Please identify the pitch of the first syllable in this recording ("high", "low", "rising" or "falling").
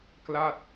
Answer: falling